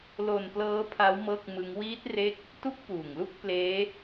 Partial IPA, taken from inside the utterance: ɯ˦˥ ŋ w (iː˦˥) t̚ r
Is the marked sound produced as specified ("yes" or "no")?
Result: yes